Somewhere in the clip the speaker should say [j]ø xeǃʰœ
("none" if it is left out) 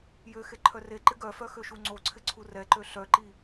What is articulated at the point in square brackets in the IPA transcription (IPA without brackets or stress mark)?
j